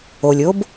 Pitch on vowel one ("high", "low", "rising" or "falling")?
low